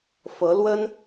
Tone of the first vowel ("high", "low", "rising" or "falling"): rising